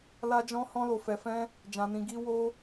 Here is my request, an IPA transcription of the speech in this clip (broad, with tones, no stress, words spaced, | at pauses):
la˧d͡ʒɔ̃˧ hɔ̃˧lo˨fɛ˨fɛ̃˧ | d͡ʒã˨nĩ˨ ɡi˧ wo˧